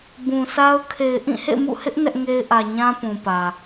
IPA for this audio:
b ũ˨ sʰ a˦ ʊ̯ kʰ e˨ ɪ̯ ʔ ĩ˦˨ h ḛ˦˨ m ṵ˦˨ h ɪ˦ ʔ n ɛ˦ ʔ ŋ e˦ ɪ̯ ʔ ä˨ ɲ ã˦ p ũ˨ p ä˨

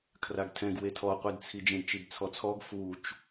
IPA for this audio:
kʰ r a ɡ tʰ ɛ̃ ɡ w e tʰ ɔ qʷ i d t͡sʰ i d͡ʒ ẽ d t͡ʃ i b t͡sʰ ɔ t͡sʰ ɔ ɡ f u t͡ʃ

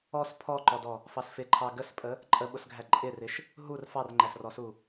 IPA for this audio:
ɔ s pʰ ɔ ǃ ɔ d ɔ | f ɑ s f ɪ ǃʰ ɑ ɡ ə s pʼ ə | ǃʼ ə ɓ ʊ s ɡʱ æ ǃʼ ɪ r ɪ ʃ | ɦ u r f ɑ r ŋ͡ǃ æ s r ɔ s u

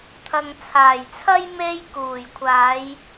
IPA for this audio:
t̪ʰ ɐ˨ ŋ t͡sʰ aː˨˩ j t͡sʰ ɐ˥ j m e˧ j k uː˨˩ j kʷʰ aː˨˧ j

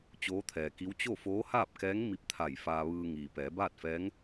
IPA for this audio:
t͡ɕ oː˧˥ t̪ʰ ɛː˩ k i˧˥ w t͡ɕ o˥˨ f oː˧˥ h aː˥˨ p̚ k ɛː˧˥ ŋ m i˧ p̚ t̪ʰ a˧˩ j f aː˧ ʋ ɯː˧ ŋ iː˩ p ɛː˩˧ b aː˥˨ t̚ f ɛː˧˥ ŋ

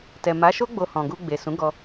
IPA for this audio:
t ɛ˨ m a˨˦ ʃ o˦ ɡ͡b o˧ h ɔ̃˨ ɡ u˧ ɡ͡b e˨ s ũ˨˦ ɡ ɔ˧

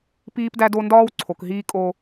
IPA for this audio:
p iː˦ p d æ˦ d o˦ n d ɒː˦ w ǀʰ o˨ k ɦ iː˦ kʼ o˦

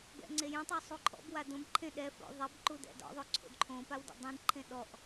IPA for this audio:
b ɛ̰ ŋ͡ǀ e j ẽ tˤ o sˤ u ǃʰ ɔ̰ b w a d õ b ǃʰ ẽ ɗ ɛ f o̰ ðˤ ɛ b ǃ u d ɛ̰ d ɔ̰ ðˤ o ǀʰ o̰ d ǃʰ õ p a w d ḛ dˤ ĩ d ǃʰ ẽ ɗ ɔ ʔ

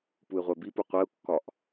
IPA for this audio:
p u ɪ̯ ʁʷ æ b i p u qʷ ɛ ʊ̯ kː ɒ ʔ

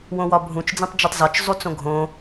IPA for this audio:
w õ w ɒ bʱ ũ t͡ʃ d͡z ĩ tˤ d͡ʒ i tˤ z ɒ t͡ʃ zˤ u t͡s õ ɡʱ õ

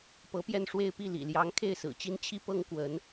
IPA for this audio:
p ɤ˧˥ p j ɛ˥˧ n ʂ w e˥˧ ɪ̯ p i˥˩ l ḭ˨˩ l j ɑ˧˥ ŋ kʰ e˥˩ ɪ̯ s ɹ̩˨˩ t͡ɕ i˥ n t͡ɕʰ i˥ p ɤ˥ ŋ k w ə˧˥ n

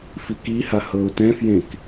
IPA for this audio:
f i k i h a h ɤ ʊ̯ t ɛ̃ f j ẽ k

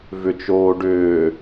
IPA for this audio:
v ʏ t͡ʃ oː ɖ ʏː

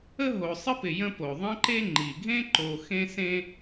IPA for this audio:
ə˥ ɦ o˨ sˤ ə˥ p ɪ˨ j ə̃˦ p o˩ ðˤ ə̃˥ ǃ e˥ ŋ͡ǃ i˩ ɡʱ ẽ˥ ǃ o˨ x ẽ˥ s ẽ˥

